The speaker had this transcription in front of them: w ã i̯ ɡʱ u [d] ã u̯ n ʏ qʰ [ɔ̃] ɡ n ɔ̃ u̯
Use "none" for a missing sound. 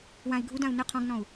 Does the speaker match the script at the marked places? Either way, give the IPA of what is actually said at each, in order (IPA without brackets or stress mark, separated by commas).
d, ɔ̃